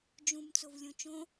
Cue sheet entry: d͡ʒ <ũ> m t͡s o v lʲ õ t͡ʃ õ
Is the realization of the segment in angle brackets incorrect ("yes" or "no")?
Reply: no